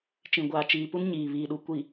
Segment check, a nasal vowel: present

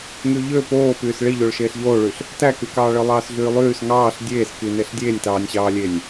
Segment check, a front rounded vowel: present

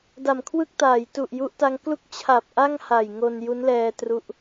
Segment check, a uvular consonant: absent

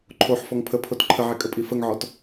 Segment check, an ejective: present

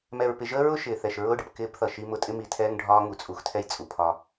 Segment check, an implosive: absent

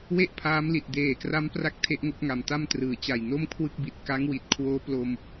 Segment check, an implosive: absent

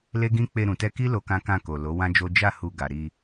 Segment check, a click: absent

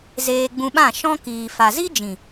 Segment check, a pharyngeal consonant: absent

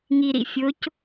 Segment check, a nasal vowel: absent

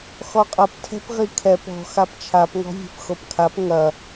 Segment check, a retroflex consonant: absent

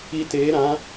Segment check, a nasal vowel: present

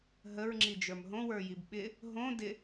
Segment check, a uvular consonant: absent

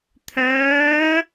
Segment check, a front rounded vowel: present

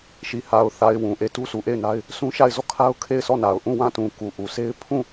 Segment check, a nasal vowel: present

